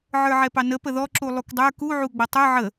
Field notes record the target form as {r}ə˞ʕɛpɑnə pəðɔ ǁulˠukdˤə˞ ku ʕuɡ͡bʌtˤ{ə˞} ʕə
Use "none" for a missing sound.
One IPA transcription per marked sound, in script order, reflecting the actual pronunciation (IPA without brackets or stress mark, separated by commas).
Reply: ʕ, ə˞